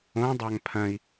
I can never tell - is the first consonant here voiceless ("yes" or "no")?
no